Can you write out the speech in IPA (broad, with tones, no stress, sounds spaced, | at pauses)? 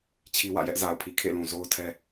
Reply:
t͡ɕʰ i˦ w ä̰˦˨ j ɛ˦ ʔ z a˨ ʊ̯ pʰ i˨ kʰ ḛ˦˨ l ũ˨ z o˦ ʊ̯ tʰ ɛ˦